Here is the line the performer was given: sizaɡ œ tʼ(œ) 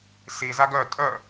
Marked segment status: correct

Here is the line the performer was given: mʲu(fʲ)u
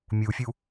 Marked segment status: correct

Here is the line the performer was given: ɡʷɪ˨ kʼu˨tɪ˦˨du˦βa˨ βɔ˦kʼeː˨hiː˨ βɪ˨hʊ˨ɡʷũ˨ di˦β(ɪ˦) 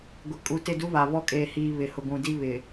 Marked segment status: incorrect: ɪ˨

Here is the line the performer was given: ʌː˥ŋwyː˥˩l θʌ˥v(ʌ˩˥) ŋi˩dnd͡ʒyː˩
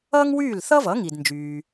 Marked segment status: correct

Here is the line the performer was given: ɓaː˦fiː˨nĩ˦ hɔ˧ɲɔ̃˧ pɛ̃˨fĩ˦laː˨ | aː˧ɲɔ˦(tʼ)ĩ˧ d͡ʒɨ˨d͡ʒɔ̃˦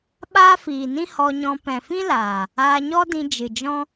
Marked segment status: incorrect: d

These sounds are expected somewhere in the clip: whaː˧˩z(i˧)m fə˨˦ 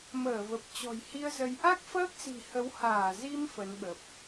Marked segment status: correct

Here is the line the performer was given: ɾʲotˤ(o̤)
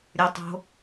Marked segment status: correct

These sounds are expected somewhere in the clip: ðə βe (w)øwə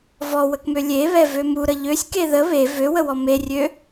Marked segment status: incorrect: v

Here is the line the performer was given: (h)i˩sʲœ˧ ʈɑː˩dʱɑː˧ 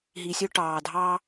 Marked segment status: incorrect: ɦ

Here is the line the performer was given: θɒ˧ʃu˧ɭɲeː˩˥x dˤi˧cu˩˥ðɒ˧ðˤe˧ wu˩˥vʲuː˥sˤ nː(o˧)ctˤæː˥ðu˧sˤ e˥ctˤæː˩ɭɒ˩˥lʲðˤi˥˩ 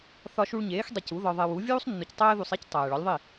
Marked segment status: correct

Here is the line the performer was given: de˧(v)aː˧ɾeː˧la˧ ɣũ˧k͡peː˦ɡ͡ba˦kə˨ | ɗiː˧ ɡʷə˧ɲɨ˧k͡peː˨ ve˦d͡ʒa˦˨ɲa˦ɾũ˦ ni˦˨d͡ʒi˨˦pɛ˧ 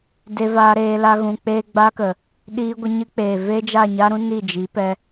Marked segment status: correct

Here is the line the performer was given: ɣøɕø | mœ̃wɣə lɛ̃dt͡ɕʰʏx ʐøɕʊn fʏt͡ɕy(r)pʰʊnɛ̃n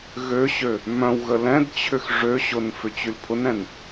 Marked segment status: incorrect: l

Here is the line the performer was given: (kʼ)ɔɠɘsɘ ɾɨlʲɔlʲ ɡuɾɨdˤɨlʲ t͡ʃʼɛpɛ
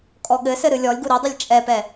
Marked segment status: correct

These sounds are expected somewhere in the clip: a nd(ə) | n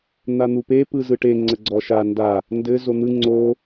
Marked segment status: incorrect: a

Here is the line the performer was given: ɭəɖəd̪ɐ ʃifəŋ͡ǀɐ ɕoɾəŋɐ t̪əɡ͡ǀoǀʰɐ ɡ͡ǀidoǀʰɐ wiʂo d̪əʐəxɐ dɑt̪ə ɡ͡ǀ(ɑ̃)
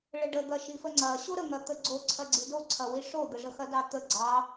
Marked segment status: incorrect: ɑ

